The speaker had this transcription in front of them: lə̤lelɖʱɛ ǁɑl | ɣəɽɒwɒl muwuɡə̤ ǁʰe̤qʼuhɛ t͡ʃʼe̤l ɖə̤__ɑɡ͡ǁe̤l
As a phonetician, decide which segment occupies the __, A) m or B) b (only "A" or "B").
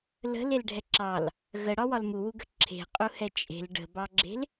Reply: B